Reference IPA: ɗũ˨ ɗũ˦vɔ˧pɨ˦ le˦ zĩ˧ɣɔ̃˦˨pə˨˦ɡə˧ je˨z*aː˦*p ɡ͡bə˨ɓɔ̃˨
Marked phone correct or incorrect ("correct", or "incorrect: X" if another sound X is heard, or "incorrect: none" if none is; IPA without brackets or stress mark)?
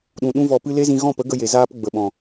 correct